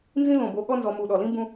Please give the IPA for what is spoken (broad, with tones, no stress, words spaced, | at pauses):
nzĩ˥lõ˧˩bo˧ɠɔ˥ nzɔ˧mu˧˩ɗɔ˧˩lĩ˥ bũ˥